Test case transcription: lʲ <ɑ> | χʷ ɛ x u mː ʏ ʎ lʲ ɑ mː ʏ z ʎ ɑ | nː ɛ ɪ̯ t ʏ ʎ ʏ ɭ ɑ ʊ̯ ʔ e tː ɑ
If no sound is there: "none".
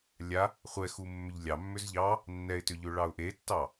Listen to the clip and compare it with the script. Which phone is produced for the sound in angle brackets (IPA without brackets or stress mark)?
a